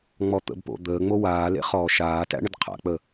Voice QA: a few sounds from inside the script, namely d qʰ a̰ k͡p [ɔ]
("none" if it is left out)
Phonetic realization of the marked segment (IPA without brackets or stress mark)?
ə